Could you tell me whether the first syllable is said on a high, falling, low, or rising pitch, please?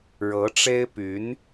rising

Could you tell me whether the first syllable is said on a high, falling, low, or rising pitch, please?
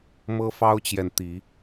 high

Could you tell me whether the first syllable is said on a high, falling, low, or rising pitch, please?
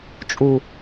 low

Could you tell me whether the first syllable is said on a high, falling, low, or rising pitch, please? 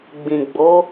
low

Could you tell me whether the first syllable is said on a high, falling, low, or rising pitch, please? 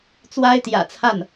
high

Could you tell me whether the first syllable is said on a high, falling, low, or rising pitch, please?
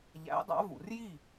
rising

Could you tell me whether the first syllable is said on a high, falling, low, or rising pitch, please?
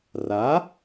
rising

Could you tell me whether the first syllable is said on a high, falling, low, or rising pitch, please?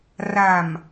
low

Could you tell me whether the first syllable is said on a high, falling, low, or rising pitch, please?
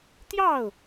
falling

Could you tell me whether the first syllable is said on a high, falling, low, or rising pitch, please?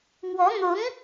rising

